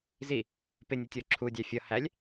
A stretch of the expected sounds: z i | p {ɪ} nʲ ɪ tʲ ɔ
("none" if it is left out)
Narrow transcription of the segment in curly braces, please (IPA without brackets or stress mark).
ɪ